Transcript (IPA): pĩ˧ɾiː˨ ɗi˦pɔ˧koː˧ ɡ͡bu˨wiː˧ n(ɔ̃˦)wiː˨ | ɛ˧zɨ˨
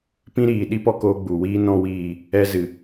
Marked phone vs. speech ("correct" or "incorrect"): incorrect